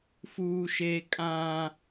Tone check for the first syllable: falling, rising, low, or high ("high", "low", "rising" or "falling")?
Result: high